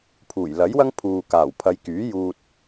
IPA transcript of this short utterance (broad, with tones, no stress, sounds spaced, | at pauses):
pʰ uː˨˩ j l ɐ˨˥ j w ɐ˥ ŋ pʰ uː˨ k aː˨˩ w pʰ ɐ˨˧ j k yː˨˥ j uː˧ t̚